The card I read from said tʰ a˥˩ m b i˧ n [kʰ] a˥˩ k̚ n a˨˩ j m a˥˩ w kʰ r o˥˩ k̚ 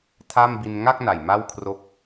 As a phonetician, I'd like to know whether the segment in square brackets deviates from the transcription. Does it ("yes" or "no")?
yes